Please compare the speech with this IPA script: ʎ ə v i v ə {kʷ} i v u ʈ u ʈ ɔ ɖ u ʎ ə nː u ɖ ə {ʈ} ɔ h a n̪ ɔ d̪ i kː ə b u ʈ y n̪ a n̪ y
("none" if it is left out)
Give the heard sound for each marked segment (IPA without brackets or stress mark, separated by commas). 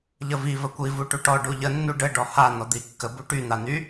kʷ, ɖ